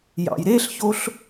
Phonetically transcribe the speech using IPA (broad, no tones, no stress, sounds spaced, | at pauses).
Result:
j ɑ̰ j ɾ e ɬ ç o ɬ